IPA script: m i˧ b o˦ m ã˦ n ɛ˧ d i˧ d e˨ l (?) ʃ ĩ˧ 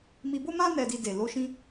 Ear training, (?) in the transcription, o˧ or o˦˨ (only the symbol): o˧